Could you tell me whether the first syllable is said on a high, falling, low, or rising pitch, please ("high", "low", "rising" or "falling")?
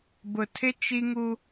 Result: low